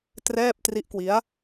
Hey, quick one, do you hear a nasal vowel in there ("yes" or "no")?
no